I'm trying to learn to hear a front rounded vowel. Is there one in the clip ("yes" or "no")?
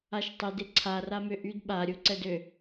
yes